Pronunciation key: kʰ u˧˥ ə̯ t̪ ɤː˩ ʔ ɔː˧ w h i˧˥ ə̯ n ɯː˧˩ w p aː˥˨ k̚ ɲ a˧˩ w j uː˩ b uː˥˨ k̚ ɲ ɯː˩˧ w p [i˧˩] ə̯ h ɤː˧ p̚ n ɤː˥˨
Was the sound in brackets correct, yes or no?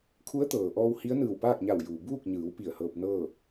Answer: yes